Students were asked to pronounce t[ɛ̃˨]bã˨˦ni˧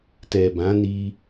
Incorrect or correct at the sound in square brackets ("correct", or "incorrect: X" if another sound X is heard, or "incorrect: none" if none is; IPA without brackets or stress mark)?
incorrect: ɛ˨